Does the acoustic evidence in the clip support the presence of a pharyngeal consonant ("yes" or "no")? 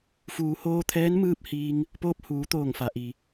no